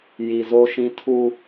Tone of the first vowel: low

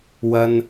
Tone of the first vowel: high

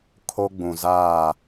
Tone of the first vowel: high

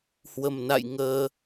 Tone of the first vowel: low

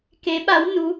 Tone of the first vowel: rising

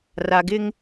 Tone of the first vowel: low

